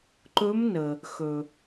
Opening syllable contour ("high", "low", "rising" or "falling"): rising